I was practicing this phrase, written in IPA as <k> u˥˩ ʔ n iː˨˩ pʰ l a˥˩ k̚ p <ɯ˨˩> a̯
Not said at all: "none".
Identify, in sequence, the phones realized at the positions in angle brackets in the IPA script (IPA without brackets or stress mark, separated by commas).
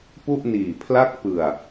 p, ɯ˨˩